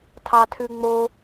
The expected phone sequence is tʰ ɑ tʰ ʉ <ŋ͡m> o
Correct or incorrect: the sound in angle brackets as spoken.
correct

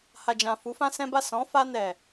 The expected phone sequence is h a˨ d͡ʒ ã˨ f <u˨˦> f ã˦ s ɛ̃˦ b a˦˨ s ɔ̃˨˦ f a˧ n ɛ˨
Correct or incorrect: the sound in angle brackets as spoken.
correct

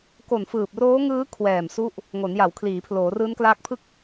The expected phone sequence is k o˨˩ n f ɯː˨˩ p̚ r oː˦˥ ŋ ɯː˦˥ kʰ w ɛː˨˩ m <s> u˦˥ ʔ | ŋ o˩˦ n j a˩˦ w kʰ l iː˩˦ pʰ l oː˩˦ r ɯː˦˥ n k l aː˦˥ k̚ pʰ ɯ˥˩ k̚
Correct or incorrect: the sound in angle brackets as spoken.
correct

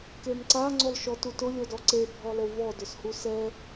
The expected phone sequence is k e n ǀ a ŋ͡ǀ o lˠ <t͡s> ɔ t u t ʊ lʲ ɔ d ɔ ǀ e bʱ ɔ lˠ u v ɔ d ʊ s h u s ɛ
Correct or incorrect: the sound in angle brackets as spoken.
incorrect: ʃ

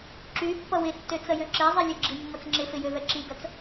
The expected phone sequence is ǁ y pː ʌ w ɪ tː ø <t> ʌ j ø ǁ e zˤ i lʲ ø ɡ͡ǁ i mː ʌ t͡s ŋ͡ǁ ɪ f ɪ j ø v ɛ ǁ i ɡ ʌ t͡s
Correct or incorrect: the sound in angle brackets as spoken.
incorrect: t͡s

